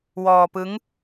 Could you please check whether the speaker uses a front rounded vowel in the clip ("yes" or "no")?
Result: no